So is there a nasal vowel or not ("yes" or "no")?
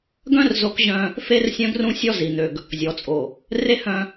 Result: yes